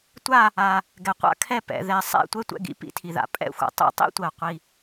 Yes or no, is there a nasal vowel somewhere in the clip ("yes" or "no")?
no